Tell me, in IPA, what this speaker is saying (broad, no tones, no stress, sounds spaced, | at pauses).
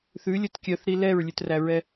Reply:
θ ʉ lʲ ɵ t kʲ œ θ ɾ i l ɛ ɹ lʲ ʉ t r æ ɹ ɛ